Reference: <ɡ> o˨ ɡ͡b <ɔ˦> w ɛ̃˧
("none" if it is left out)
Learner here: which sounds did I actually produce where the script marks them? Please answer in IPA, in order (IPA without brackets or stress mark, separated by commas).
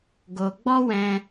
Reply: ɡ, ɔ˦